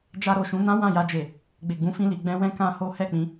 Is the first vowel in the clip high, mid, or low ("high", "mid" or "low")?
low